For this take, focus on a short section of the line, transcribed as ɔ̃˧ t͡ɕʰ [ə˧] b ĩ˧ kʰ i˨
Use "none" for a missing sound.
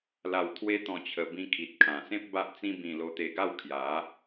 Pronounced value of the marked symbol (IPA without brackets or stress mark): ə˧